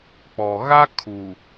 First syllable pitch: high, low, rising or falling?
low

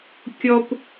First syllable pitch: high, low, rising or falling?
high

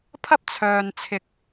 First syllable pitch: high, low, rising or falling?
high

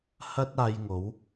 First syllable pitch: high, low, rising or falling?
high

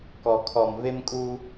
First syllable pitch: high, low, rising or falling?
low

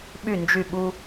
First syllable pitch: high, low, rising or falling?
falling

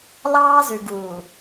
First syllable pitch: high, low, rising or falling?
high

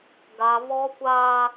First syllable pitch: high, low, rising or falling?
high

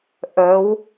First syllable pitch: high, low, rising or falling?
rising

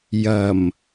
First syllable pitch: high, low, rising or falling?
low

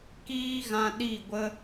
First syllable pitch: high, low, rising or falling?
high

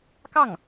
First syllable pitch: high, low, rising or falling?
falling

